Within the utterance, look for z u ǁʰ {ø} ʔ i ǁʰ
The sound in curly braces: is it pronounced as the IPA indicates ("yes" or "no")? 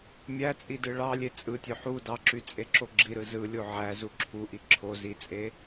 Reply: no